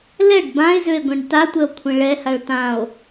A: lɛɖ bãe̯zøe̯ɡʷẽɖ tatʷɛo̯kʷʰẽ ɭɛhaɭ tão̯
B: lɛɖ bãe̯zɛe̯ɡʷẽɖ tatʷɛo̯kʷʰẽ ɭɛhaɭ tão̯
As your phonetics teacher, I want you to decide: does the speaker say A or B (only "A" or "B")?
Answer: A